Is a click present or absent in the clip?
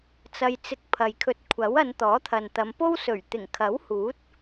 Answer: absent